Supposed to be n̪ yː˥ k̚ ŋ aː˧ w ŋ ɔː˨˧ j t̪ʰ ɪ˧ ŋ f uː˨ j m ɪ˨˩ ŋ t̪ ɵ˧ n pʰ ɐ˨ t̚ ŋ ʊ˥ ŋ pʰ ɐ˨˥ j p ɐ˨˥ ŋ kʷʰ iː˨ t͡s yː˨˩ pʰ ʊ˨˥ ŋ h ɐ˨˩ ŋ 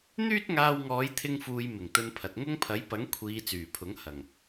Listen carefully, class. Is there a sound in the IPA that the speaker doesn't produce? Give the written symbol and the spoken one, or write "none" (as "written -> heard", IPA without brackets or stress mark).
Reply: k̚ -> t̚